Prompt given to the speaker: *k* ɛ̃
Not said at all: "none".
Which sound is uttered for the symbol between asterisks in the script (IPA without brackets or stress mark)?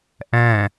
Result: ʔ